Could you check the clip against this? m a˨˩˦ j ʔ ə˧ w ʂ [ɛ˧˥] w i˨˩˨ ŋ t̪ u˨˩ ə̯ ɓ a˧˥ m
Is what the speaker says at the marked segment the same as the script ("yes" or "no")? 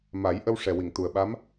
no